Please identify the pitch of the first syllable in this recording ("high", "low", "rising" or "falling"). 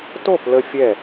falling